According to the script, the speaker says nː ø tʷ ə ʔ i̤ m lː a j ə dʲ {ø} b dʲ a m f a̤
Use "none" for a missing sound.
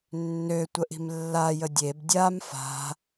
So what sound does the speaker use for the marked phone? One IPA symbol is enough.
e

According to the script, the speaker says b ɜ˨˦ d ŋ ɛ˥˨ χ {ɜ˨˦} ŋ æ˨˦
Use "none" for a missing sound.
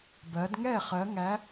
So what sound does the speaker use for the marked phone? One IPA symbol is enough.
ɜ˨˦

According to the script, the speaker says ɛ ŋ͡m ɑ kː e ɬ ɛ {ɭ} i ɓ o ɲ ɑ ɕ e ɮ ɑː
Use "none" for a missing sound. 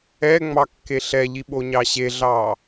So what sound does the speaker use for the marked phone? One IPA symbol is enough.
ʎ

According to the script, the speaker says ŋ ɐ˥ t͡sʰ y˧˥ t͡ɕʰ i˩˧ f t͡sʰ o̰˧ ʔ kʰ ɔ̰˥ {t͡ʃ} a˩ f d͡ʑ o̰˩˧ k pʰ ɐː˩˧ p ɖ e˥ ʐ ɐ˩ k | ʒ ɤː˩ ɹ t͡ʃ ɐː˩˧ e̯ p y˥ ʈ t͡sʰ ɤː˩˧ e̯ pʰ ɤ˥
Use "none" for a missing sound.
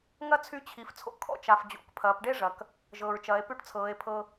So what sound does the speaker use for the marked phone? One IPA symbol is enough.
t͡ʃ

